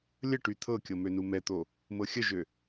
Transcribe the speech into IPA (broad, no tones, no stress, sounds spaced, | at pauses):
lʲ ə ʈ y t̪ʰ ɤ kʲ ɤ m ø n u m ɛ t̪ o | m ɤ xʲ ə ʒ ø